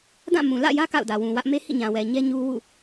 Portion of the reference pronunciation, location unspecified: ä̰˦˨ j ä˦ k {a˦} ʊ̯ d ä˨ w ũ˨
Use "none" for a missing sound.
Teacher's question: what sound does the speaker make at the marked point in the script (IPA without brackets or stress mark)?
a̰˦˨